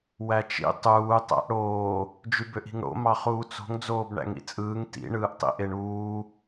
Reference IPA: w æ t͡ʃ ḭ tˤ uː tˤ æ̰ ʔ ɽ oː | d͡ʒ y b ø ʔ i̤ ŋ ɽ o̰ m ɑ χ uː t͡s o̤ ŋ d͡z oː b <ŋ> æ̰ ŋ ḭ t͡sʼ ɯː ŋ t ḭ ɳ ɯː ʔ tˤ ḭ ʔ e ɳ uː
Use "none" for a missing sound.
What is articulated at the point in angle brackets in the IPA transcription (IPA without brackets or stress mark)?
ɳ